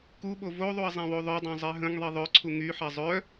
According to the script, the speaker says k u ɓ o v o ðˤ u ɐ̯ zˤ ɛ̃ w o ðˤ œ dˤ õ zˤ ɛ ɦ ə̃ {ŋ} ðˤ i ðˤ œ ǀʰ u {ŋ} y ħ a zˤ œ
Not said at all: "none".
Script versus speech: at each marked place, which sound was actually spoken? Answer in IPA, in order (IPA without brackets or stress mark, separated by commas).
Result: ŋ, ŋ